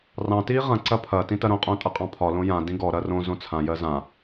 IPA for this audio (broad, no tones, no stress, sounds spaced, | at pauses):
r ɑ̃ t iː ʁ ɐ̃ ǀ ɐ pʰ ɐ t ĩ t ɐ ɾ õ qʼ õ tʼ ɐ qʼ ɑ̃ pʰ ɒ l õ j ã d ĩ ɡ ɔ ɾ ɐ r õ z õ t͡sʰ ã j ɜ z ã